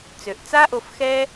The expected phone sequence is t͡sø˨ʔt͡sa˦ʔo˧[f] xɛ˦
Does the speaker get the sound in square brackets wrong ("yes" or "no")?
no